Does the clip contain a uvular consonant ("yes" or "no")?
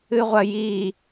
yes